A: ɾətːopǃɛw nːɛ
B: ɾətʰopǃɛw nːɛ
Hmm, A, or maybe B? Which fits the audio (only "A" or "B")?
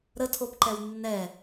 B